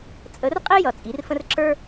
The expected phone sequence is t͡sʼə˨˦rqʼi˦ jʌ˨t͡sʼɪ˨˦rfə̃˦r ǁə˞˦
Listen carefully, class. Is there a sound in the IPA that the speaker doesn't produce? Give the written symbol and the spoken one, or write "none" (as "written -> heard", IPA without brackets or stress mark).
ɪ˨˦ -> i˨˦